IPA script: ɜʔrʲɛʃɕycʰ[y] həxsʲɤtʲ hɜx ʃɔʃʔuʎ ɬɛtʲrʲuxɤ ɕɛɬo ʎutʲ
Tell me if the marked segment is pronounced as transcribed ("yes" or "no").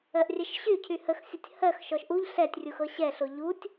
yes